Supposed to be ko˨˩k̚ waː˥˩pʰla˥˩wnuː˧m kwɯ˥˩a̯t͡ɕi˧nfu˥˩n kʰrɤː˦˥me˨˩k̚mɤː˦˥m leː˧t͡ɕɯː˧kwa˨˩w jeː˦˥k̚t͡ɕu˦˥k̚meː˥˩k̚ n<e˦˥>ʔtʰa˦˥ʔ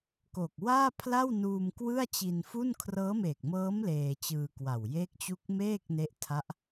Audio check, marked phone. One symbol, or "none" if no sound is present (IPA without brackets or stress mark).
e˦˥